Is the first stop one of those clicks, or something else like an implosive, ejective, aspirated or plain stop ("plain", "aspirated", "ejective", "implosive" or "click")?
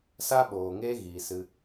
implosive